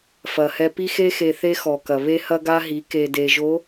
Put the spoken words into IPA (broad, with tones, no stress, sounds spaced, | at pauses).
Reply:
f ɐ˨ h ɛ˦ p i˦ x e˦ x e˨ θ e˦ x ɔ˨ k ɐ˨ β e˦ h ɐ˦ ɡ a˦ ɦ i˨˦ k e˨ d e˨ ʒ o˨˦